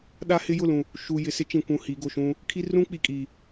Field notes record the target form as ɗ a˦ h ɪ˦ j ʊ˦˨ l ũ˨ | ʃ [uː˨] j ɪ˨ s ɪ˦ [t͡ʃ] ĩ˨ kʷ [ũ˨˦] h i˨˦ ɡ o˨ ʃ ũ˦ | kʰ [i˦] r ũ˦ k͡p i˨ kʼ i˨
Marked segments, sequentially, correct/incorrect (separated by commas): incorrect, correct, incorrect, correct